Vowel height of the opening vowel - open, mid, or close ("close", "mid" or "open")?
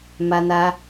open